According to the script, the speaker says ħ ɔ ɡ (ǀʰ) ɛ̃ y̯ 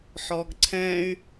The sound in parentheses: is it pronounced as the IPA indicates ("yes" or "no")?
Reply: yes